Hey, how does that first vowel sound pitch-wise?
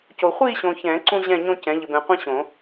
low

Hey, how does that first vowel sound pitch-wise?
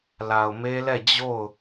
low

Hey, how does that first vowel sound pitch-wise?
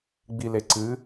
low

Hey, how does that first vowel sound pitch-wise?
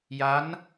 rising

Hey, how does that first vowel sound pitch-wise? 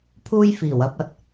high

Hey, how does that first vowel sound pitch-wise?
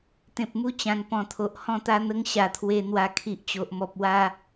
low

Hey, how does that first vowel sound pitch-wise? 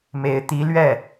rising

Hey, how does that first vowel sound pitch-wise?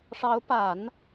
rising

